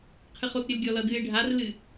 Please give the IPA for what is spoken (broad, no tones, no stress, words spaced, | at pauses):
qʰɨχotɾʲɨl ɡʲɔlʌdɨɪ̯ ɖʱarlɨ